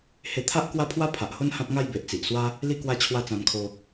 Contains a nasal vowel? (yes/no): yes